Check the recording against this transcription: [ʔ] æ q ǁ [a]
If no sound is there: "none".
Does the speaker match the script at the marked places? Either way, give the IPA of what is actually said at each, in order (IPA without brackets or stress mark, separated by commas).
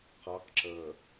q, ə